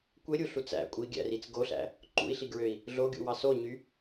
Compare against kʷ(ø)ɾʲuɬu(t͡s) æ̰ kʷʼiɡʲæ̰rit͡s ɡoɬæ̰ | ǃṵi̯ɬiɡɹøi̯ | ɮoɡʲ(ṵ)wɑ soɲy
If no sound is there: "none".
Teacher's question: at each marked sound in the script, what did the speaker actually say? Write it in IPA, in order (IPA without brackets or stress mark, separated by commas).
e, t͡s, ṵ